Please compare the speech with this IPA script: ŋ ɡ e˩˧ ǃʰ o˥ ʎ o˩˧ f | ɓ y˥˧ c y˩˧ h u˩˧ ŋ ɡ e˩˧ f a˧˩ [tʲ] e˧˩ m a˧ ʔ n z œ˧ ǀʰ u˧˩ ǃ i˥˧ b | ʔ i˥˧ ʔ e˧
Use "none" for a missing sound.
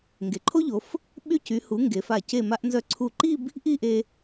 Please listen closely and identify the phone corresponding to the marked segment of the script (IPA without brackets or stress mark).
c